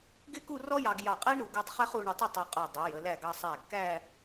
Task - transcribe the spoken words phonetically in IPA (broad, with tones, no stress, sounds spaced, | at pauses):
ɡ ɪ˥ k u˥˧ r ɔ˥ j ɑ˧ ɡ j ɑ˧˩ qʼ æ˥ ɳ ɾ u˩˧ ɡ u˧ tˤ χ ɛ˥ χ u˧ ɳ ə˧ tˤ ə˥˧ tˤ ɑ˧ qʼ ə˞˧˩ dˤ u˩˧ j ə˩˧ l æ˧˩ ɡ ɑ˧ sˤ æ˧˩ ɡ k æ˥˧